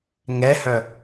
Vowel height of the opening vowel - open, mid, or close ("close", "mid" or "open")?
mid